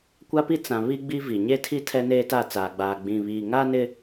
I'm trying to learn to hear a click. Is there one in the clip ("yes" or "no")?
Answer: no